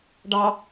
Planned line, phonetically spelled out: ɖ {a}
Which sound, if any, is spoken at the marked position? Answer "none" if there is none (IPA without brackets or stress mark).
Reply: ɑ